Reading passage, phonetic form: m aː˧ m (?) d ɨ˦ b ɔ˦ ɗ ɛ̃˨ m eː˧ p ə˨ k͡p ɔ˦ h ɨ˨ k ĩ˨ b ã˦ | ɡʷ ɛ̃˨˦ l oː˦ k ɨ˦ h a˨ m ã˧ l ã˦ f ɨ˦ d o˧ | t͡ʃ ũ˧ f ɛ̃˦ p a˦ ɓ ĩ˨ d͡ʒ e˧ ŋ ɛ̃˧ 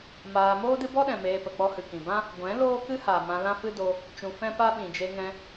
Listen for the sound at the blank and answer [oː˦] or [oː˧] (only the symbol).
oː˦